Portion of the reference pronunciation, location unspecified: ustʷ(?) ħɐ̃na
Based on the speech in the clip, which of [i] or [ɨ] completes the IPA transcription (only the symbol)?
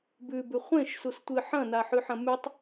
ɨ